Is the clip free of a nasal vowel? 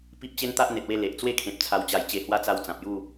no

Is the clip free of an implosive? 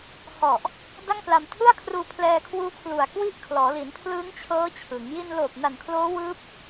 yes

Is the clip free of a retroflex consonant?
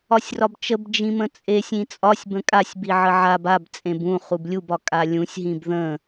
yes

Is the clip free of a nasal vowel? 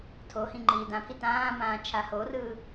no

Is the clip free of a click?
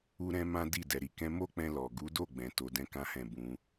yes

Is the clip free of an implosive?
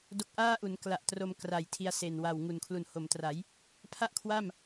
yes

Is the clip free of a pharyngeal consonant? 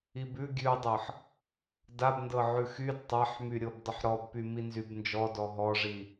no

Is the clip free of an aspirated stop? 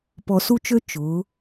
yes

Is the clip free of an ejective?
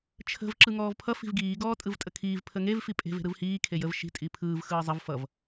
no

